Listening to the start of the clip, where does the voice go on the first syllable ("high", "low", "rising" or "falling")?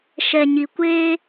low